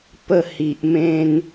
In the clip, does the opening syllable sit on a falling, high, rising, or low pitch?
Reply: falling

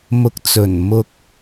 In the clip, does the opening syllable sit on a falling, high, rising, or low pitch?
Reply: rising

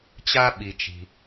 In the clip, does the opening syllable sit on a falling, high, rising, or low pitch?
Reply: high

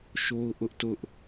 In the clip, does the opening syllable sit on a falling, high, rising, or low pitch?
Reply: high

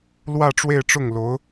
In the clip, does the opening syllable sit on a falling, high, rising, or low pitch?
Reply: falling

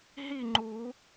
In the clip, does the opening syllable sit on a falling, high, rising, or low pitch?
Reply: falling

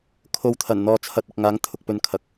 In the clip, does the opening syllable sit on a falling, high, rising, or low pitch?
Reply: low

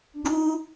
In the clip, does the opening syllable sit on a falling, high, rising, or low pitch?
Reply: high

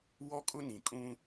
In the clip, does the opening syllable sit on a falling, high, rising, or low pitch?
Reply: high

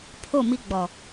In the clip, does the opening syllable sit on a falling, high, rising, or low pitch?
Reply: falling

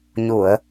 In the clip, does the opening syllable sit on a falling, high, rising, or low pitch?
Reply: low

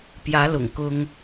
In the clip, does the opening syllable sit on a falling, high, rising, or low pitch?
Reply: rising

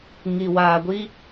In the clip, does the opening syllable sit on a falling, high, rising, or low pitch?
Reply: low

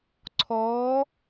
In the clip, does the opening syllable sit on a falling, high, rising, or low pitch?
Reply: rising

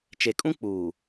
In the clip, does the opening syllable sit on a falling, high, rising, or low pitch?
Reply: low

